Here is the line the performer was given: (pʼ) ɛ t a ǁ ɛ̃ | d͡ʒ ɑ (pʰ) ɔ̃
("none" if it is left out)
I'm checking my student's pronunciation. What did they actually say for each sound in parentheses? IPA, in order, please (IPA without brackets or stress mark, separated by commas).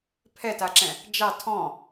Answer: pʰ, tʰ